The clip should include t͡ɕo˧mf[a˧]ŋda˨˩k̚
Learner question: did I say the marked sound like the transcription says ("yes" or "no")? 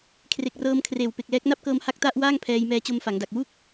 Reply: no